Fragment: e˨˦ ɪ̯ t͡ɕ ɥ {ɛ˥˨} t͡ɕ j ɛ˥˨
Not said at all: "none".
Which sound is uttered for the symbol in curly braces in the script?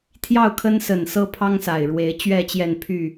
ɛ˥˨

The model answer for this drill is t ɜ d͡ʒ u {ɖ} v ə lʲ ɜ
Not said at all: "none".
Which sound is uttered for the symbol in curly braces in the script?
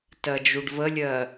ɖ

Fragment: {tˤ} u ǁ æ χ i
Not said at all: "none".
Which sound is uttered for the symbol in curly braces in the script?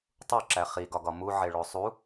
tˤ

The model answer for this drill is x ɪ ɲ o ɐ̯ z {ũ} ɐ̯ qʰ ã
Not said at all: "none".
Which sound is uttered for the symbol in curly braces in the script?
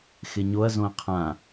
õ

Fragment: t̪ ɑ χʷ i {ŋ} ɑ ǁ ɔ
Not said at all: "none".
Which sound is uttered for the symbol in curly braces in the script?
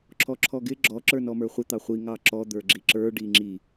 ŋ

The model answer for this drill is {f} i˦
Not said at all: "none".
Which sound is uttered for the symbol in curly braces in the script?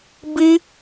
b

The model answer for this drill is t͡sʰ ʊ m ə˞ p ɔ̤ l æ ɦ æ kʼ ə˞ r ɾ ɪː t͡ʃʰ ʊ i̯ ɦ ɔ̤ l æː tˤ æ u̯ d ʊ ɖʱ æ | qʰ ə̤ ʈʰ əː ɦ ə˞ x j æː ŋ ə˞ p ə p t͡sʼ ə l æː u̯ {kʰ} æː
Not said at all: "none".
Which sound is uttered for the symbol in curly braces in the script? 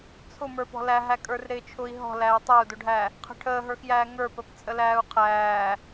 qʰ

